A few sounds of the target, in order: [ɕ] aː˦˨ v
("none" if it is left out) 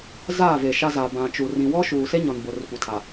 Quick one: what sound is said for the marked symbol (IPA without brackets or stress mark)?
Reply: z